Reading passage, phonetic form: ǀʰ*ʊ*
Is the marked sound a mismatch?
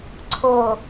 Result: no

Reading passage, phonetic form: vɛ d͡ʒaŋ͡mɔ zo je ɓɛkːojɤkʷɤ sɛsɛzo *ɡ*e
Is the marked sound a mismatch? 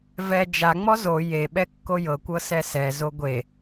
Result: yes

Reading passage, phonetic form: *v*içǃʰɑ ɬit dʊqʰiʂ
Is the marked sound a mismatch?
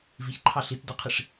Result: no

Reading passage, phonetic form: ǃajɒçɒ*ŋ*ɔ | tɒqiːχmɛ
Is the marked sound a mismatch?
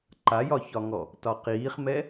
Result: no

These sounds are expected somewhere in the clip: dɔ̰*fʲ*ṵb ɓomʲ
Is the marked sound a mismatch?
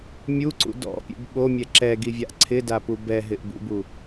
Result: yes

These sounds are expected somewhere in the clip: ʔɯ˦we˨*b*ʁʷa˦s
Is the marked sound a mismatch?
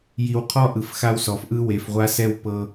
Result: yes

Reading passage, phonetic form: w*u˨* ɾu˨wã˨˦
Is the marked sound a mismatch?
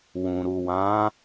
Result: yes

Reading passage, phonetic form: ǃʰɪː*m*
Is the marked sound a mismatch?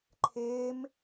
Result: no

